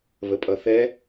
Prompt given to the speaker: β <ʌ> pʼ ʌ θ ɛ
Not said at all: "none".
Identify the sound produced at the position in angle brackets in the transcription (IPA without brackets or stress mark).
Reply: ə